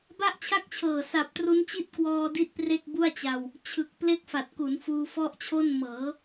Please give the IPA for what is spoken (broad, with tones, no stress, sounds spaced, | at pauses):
b a˥˩ ʔ t͡ɕʰ a˥˩ k̚ t͡ɕʰ ɤː˨˩ s a˨˩ p̚ t r u˦˥ n t͡ɕ i˥˩ t̚ k w ɔː˧ d i˥˩ t̚ p r e˥˩ k̚ b u˥˩ a̯ t͡ɕ a˧ w | t͡ɕʰ ɯ˨˩ k̚ p l e˥˩ k̚ f a˨˩ t̚ k u˩˦ n f uː˧ f ɔ˥˩ ʔ t͡ɕʰ o˥˩ n m ɤː˩˦